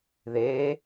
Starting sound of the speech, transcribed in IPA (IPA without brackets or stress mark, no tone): ð